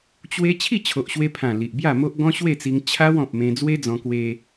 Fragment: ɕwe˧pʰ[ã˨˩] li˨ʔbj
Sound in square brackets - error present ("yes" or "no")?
no